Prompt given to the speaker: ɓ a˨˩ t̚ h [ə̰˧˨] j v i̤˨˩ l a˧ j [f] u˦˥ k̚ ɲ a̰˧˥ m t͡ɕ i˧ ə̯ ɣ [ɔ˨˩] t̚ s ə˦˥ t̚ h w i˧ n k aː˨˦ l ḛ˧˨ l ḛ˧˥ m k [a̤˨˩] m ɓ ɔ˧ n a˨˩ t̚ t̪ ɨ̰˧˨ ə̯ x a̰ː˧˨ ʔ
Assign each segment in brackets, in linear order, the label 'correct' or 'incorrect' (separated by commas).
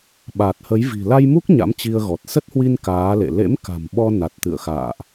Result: incorrect, incorrect, correct, correct